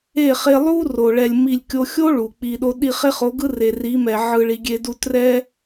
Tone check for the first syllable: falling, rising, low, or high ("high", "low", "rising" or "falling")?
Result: falling